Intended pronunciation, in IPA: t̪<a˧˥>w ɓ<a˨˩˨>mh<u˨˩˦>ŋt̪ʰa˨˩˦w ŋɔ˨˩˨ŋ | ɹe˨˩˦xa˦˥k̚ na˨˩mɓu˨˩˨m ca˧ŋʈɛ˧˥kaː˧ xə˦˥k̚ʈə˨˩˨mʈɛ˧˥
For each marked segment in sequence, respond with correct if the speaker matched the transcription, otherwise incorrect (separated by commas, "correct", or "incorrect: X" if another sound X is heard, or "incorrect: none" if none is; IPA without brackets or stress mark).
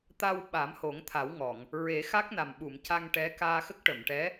incorrect: a˧, incorrect: a˨˩˦, incorrect: o˨˩˦